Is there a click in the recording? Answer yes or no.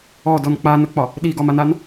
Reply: no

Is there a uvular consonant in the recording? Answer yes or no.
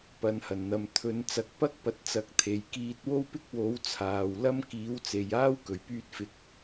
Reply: no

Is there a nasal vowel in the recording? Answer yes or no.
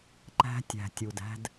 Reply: no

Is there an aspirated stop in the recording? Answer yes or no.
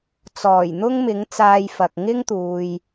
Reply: no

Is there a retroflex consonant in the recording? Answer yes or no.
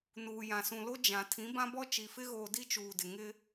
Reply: no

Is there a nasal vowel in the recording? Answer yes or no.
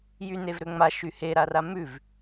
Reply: no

